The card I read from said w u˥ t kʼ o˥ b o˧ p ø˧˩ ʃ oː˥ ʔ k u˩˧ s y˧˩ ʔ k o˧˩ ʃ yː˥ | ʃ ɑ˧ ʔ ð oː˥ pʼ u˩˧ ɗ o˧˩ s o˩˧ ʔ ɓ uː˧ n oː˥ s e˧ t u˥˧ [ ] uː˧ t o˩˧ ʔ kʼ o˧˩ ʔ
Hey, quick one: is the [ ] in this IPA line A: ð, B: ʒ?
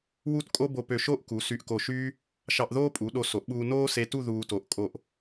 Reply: A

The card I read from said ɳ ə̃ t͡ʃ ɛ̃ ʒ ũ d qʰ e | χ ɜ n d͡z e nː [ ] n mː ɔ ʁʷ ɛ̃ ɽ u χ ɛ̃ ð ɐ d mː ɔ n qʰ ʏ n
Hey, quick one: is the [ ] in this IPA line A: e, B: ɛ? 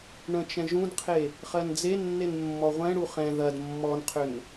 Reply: A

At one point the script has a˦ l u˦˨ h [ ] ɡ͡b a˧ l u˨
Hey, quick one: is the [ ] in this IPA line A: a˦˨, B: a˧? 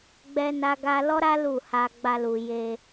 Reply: B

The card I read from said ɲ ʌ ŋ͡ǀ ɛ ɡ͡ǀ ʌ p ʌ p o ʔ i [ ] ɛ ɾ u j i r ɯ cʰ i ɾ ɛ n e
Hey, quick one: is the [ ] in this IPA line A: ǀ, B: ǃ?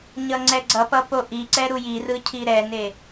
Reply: A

